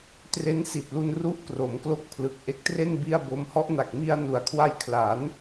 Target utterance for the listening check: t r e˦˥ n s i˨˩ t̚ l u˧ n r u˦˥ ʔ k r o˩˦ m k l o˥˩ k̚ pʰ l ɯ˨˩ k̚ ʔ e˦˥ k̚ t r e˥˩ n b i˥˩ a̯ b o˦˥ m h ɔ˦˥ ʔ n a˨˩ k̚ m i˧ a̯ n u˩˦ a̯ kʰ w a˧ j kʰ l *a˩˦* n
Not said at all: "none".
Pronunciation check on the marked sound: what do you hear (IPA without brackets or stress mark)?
a˩˦